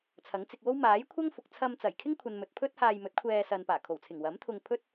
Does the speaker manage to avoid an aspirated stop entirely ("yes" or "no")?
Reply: no